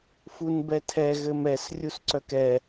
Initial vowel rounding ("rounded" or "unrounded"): rounded